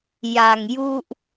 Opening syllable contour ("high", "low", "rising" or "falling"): low